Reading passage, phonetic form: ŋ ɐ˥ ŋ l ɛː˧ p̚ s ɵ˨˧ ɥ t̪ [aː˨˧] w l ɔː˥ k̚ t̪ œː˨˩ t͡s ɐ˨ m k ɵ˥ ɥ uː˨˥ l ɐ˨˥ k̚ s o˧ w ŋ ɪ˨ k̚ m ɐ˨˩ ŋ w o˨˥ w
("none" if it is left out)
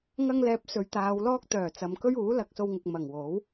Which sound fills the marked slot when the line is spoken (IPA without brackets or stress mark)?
aː˨˧